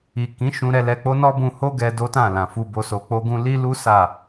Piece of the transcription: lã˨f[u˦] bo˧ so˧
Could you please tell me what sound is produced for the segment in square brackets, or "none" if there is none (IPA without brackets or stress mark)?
u˧